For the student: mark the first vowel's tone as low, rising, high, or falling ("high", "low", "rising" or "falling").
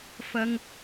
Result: high